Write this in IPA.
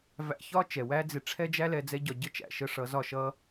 v æ̰˧ ç ɒ˦ t͡ʃ ɛ˨ w æ˦ d͡z ɪ˧ ʈ͡ʂʰ ɛ˦ d͡ʒ æ˦ l ɛ˧ d͡z ɛ˦ ɟ ɒ˧ ɟ ə˦ t͡ʃ æ̰˨ ʃ ə˧ ʂ ʌ˨˦ z ɒ˦˨ ʃ ʌ˦

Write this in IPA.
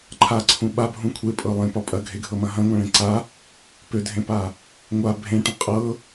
ǃʰ a ǀʰ ũ ɓ a bʱ ũ kʷʰ e pʼ ɤ lˠ ẽ p ɒ pʼ ɐ ɡʱ e ɡʱ ɤ m ɐ̃ ɦ ɐ̃ ŋʷ ã ɭ ẽ ǀ a | p ø dʱ ẽ p a | ŋʷ a bʱ ẽ ʈ ɐ̃ qʼ ɤ

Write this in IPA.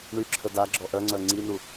ɳ y ǁʰ ə d a ɡ͡ǁ ɔ ʔ œ ŋ͡ǀ œ ŋ͡ǀ i n u

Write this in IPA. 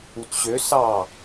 u t ɕ ø s ɑ

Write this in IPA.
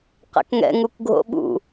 q ɛ̰ k ŋ ɛ̰ ŋ u k ɡʱ o̰ ɓ ṵ

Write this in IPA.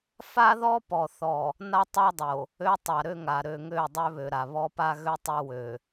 f a˦ ð ɔ˦ p ɔ˨ θ ɔ˨ | n a˦ tˤ a˦ dˤ o˨ | ø˦ tˤ a˨ ɾ ø˦ ŋ a˨ ɾ ø˨ ŋ ø˦˨ dˤ ø˦ β ø˨ ɾ a˨ β ɔ˦ p a˦ ɣ ø˦ tˤ ø˦ w ø˨

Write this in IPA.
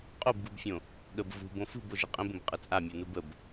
qʼ o b ɡ u b fʲ õ | ɠ ə b v ṳ b õ f ṳ b o ʒ ə qʼ ə̃ b ə̃ b qʼ ə t͡sʼ a mʲ u n u b ə b

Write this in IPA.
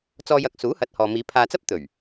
t͡s ɔː˧ j ɐ˨ k̚ s uː˨˥ h ɐ˨˥ t̚ h ɔː˨ m iː˨˧ pʰ aː˧ t͡s ɐ˥ p̚ t̪ ɵ˨˩ ɥ

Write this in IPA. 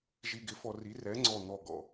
ʒ i˨˩ ɡ ɪ˩˥ f ɔ˨˩ r i˩˥ r ɛ˩˥ ŋ͡ǀ ɔ˨˩ n̪ ɔ˨˩ ɡ ɔ̰˨˩

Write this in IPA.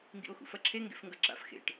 ŋ ɡ ḭ o̯ x ṵ f ɐ ǁʰ e ŋ ɡ ḛ f ŋ ɡ ɐ ǁ a̰ f x ḛ ʈ

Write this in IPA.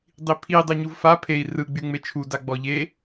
dˤ i pʰ i dˤ e ɲ u v f a pʰ e i̯ r ɯ ɡ͡b y ŋ͡m e t͡ʃʰ u d a ɡ͡b ɔ ʎ e

